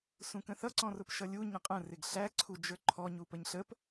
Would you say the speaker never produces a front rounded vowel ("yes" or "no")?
yes